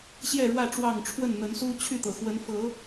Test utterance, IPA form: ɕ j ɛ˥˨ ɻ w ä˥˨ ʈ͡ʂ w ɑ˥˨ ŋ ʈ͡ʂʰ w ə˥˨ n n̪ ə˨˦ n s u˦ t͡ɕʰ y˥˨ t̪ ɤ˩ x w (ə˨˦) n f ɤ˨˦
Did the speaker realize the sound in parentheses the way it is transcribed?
yes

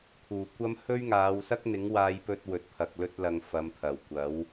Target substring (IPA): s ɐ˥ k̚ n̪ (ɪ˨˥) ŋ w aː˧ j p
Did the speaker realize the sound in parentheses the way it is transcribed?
yes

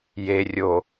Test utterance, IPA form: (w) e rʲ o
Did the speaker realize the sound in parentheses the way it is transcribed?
no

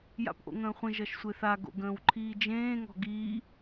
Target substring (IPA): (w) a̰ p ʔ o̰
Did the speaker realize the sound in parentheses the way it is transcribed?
no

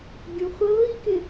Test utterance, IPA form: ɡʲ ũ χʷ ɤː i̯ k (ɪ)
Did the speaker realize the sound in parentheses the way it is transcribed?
yes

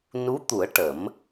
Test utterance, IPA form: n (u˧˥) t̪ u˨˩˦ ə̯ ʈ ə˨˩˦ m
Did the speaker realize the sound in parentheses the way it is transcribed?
yes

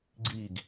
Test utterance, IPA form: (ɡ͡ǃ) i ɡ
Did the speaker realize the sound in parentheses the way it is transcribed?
no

